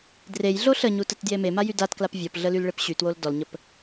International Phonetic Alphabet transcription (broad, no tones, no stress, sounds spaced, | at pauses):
d r e j ɮ o ɬ ə ɲ u t ə t d j e m e m a j y d a t k l a p vʲ ɔ p ɮ ə l y l ɭ e p ɕ y t w o l d ɔ l ɲ ə p